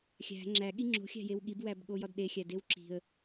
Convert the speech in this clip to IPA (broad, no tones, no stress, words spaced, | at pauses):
xʲæ̤ ŋ͡ǁæɠi ŋ͡ǁo̤xʲæ̤jew ɠibwæbɠojɒd ɗexʲædew ǁi̤ə̯